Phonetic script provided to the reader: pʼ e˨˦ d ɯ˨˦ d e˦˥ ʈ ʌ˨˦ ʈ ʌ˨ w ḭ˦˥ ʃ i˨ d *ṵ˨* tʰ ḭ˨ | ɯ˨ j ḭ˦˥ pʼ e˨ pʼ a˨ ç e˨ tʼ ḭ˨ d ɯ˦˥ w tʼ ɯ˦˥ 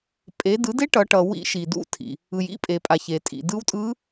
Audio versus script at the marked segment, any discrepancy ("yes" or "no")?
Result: yes